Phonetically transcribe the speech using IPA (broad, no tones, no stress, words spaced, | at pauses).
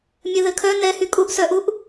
mʲɘðɘkʰœ nɛhy kʼuʔsœʔuʔ